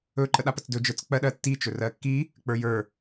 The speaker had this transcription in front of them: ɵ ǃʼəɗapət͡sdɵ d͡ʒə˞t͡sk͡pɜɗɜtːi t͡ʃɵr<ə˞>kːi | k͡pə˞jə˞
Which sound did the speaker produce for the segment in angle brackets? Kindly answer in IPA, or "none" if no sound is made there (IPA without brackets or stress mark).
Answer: ɜ